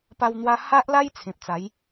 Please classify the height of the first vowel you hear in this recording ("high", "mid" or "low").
low